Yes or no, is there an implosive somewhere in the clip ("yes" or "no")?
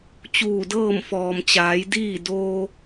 no